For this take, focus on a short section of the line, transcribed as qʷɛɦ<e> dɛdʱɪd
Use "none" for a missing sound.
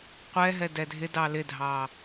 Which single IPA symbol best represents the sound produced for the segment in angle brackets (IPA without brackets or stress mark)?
ɛ